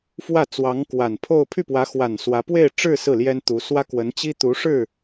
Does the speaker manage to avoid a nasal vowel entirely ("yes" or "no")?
yes